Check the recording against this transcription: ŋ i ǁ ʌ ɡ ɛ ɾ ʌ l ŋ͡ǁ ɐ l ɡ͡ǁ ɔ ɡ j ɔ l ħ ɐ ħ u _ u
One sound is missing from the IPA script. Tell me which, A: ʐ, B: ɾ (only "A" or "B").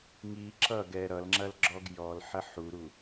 B